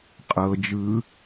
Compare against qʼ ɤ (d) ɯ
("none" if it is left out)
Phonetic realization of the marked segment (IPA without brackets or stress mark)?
d͡ʒ